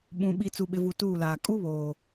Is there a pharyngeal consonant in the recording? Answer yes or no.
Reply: no